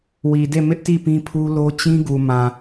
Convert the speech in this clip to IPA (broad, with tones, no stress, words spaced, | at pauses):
wi˨de˦˨mɪ˦ʔti˦˨ pĩ˦pʰu˦lo˦ t͡ɕĩ˦ ɡu˨mã˨